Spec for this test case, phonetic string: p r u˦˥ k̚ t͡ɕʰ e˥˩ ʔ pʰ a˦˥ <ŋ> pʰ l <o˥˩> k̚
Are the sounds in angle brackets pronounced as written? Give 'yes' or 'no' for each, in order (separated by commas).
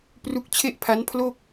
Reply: no, yes